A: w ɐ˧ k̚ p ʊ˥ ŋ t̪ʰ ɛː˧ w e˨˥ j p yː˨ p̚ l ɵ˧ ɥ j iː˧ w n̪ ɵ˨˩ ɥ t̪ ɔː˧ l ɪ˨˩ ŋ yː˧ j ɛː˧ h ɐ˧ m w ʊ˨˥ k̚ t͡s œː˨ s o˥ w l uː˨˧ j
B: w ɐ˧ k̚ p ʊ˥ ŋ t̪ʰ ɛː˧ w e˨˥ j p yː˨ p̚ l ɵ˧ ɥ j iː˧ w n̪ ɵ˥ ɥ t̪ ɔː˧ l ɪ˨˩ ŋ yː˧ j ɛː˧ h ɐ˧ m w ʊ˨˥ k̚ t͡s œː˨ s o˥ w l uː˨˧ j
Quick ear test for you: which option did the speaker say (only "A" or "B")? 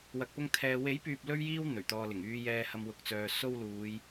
A